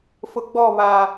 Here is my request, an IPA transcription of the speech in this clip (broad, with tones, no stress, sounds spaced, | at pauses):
f ʊ˨ ɡ͡b ɔ˦˨ β a˨